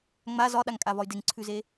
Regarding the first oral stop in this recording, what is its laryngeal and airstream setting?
implosive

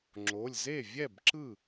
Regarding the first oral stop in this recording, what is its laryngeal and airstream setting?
click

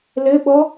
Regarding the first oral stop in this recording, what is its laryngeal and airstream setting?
implosive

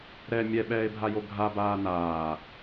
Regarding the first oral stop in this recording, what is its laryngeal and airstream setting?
implosive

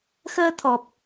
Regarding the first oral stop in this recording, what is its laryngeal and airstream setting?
aspirated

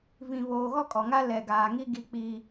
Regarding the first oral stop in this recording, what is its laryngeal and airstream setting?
ejective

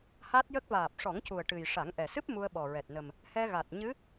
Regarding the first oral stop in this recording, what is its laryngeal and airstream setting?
plain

